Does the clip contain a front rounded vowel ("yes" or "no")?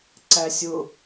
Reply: no